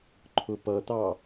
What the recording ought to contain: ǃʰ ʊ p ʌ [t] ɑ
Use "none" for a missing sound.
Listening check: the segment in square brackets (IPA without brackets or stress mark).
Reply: t